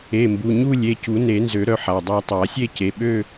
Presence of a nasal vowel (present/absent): absent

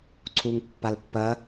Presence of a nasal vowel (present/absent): absent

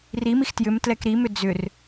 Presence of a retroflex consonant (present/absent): absent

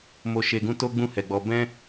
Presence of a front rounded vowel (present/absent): absent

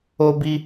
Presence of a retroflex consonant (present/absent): absent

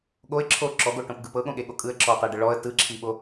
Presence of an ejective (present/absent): present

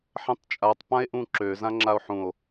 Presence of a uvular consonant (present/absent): absent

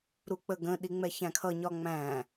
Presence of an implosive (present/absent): present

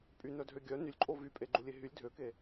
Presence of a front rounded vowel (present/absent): present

